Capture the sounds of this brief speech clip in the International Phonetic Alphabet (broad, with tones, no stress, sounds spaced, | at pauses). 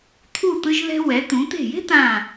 t̪ʰ u˧˩ t̪ ɯ˧ ʒ ð ɛ̤˧ w ɛ˩˧ t̪ ũ˩˧ t̪ e̤˧˩ j e̤˥ t̪ ã˧˩